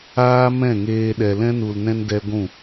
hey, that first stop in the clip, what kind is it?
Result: implosive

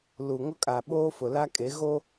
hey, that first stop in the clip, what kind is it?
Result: ejective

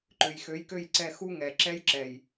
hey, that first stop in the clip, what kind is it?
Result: click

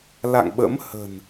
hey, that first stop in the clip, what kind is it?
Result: implosive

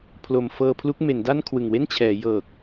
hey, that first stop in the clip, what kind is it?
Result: aspirated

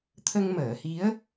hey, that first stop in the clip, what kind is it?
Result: aspirated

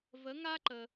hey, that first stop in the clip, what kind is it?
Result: click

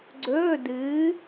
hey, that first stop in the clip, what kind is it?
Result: click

